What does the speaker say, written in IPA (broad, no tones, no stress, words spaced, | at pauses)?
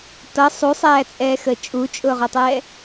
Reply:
tʌ sˤusˤæːt͡sʼɛːxəː t͡ʃʼut͡ʃʼʊːʁʊtˤɛː